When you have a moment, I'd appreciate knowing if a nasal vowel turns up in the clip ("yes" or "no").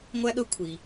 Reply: no